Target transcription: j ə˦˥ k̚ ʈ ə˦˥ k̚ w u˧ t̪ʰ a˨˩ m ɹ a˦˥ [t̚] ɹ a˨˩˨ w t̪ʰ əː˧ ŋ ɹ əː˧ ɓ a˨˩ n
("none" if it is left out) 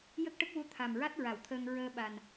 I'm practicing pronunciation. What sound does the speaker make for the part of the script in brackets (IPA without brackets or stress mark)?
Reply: t̚